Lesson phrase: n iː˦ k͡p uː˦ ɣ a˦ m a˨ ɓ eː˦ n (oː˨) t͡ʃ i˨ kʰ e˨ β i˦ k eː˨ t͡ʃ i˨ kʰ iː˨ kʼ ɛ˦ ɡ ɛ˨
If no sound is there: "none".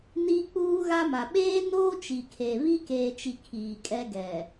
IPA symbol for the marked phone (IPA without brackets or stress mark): oː˦